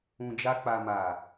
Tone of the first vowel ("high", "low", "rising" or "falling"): low